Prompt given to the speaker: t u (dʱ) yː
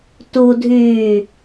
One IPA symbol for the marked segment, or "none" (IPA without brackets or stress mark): dʱ